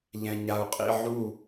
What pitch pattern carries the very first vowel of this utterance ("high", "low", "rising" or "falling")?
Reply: low